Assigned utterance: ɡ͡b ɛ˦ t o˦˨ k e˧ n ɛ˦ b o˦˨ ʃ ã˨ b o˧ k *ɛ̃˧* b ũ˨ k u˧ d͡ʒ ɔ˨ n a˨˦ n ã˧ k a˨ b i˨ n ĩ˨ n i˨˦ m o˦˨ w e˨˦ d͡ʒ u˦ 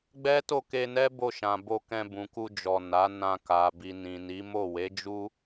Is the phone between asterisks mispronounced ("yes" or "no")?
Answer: no